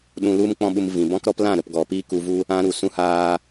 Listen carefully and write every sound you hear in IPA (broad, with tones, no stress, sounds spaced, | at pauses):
ɗ ũ˧ l u˦ m k͡p ɔ̃˦ ɓ u˧ m v ĩ˨ b ɔ̃˦ k ɾ ɔ˦ p l ã˦˨ ɾ ə˨ p ɡ ɔ˨ p iː˦ k u˧ v u˦ | ã˦ ɾ u˨ s ũ˦ h aː˦